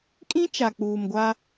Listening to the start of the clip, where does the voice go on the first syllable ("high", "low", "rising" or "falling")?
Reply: high